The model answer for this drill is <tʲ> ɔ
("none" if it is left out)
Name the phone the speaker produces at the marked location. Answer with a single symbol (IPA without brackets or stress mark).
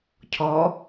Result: cʰ